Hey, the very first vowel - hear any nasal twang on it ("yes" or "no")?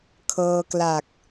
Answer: no